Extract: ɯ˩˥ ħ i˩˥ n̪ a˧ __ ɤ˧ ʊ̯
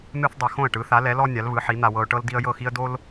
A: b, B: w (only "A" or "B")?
B